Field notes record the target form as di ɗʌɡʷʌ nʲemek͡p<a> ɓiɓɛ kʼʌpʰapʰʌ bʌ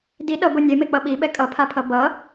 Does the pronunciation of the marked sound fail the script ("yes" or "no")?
yes